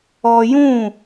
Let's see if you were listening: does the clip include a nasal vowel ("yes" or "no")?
yes